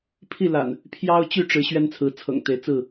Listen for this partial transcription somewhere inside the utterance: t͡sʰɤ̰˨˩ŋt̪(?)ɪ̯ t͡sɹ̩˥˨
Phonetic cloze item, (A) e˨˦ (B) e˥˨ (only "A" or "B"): A